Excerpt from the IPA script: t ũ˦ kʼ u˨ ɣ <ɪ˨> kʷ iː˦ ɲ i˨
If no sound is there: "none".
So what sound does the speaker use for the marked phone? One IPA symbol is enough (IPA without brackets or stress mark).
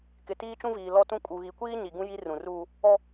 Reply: i˨